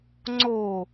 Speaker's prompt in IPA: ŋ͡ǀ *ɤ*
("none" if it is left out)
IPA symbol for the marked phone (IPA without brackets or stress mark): o